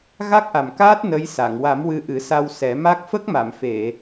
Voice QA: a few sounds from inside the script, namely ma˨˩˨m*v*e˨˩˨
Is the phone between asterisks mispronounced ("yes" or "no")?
yes